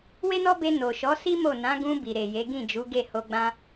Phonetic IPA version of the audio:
w e˦ n ɔ˦ b e˧ n o˨ ʃ ɔ˨˦ s i˦ m o˦˨ n ã˨˦ ɡ ũ˧ b i˨ ɾ e˨ j e˨˦ ɡ ĩ˦˨ d͡ʒ u˨˦ ɡ e˦˨ h o˧ ɡ͡b ã˦

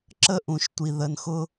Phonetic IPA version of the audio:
ǁ ə˦ ʔ ũ˨ ʃ tʷ i˨ ð ə˨ n x ʊ˦

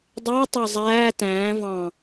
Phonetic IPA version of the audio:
dˤ æ tˤ ɑ zˤ æː t æ̃ː v ɑ̃

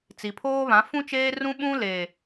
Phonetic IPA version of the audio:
t͡s i˨ pʰ oː˦ β ã˨˦ f ũ˦ t͡ʃ eː˦ r ũ˦ ɓ ũ˦ l e˨

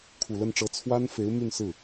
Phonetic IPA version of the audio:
kʰ u˨˩ l ə˥˩ n ʈ͡ʂ ɤ˧˥ t͡sʰ w a˥ n f e˧˥ ɪ̯ m y˥˧ n s ɹ̩˥˩

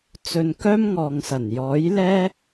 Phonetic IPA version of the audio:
t͡s ɵ˧ n k œː˥ m ŋ ɔː˨ ŋ s ɐ˨˩ n j ɔː˨˥ j l ɛː˥

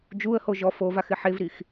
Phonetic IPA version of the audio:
d͡ʒ u ə̯ h o ʒ ɔ f o v a x ɪ ħ e v ɾ i x

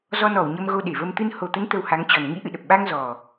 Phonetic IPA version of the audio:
z ɔ˧ n ɔ˧˩ w ɲ ə˧ m ɣ o˧ ɗ e˧˩ v ə˧ m t̪ ɨ˧ n h o˨˩ t̪ ə˨˦ n t̪ ə˧ w h a˨˦ ŋ t͡ɕ ɔ˨˩ n ŋ ḭ˧˥ ʔ ɨ̰˧˨ ɗ ə˨˩ p̚ ɓ a˧ ŋ z ɔ˨˩

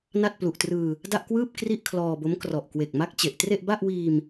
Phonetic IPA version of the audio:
n a˥˩ t̚ p l u˨˩ ʔ t r ɯː˧ | d a˥˩ ʔ k w ɯː˥˩ p̚ k r i˥˩ ʔ kʰ l ɔː˧ b o˦˥ m k r ɔ˨˩ ʔ k w e˨˩ k̚ m a˦˥ k̚ t͡ɕ e˨˩ ʔ t r e˥˩ ʔ b a˥˩ ʔ w iː˧ m

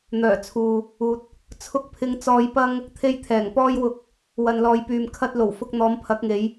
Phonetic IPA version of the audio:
n̪ œː˨˩ t͡sʰ uː˨ | uː˨ t̚ | t͡sʰ ʊ˧ k̚ pʰ ɪ˧ ŋ t͡s ɔː˧ j p ɐ˥ ŋ | t̪ʰ e˧ j t̪ʰ ɛː˨˩ ŋ p ɔː˥ j w ʊ˧ k̚ | w ɐ˨ n l ɔː˨ j p yː˨ m kʰ ɐ˧ t̚ l o˨˩ w f ʊ˧ k̚ n̪ ɔː˨˧ m pʰ ɐ˨˥ k̚ ŋ e˨˧ j

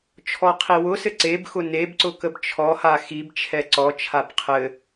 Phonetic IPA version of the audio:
t͡ʃʰ ɔ qʰ i w ʊ s ɘ ǀ e b x ʊ n e b ǀ ʊ k ə b t͡ʃʰ ɔ h a x i b t͡ʃʰ ɛ ǀ ɔ t͡ʃʰ a b qʰ ɘ

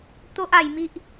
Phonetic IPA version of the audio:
t̪ o˦ ʔ a˨˩ j m i˦ ʔ

